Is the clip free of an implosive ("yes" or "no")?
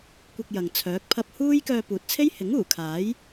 yes